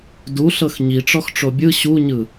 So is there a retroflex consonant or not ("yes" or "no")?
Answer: yes